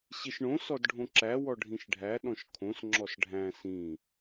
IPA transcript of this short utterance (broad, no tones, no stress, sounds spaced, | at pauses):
ɕ i ʃ ɳ õ s ɔ d ɖʱ õ ǁ æ w ɔ ɖʱ ĩ ʃ ɖʱ æ ɗ ɔ̃ ʃ kʰ õ s ŋ͡ǁ ɔ s ɖʱ æ̃ s ĩ